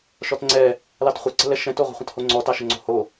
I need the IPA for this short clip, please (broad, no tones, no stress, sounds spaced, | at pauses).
ʃ ɔ t ŋ͡ǀ ɛ | l ɑ t χʷ ə ǀ ə̤ l ɛ ʃ ɛ̃ t o ʁʷ ə̤ χʷ ə̃ t h o ŋ͡ǀ ɔ t ɑ ʃ ə ŋ͡ǀ o̤ h o